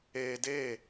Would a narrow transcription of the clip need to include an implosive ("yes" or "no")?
no